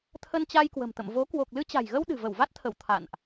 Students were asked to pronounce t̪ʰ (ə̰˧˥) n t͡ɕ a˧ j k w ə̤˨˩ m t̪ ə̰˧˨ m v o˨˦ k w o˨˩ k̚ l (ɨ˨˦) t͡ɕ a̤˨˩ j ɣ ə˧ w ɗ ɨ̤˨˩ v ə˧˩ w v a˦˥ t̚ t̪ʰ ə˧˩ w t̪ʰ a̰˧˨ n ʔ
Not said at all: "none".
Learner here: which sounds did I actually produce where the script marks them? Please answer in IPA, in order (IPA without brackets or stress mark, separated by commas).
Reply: ə˧, ɨ˧